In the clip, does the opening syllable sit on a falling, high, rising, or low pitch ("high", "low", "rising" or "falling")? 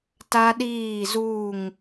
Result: high